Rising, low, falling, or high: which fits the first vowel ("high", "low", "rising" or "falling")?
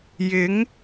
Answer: rising